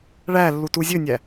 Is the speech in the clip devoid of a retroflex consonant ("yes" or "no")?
no